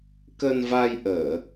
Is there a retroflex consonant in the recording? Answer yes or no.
no